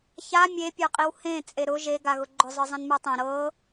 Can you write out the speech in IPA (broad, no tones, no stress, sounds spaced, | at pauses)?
ç a mʲ e pʲ ə˞ qʼ i w h ẽ t͡sʼ e ɾ ʊ ʒ e ɡ a ɣ ʊ ɡ͡ǃ ʊ zˤ ə˞ zˤ ĩ n m ə˞ tˤ ẽ ɾ ɤ